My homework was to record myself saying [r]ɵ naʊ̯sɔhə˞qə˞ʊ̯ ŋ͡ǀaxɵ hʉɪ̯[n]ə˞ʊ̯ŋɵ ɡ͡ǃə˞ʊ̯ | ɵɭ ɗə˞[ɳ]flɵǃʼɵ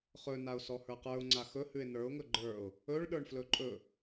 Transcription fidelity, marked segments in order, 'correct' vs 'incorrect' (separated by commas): incorrect, correct, correct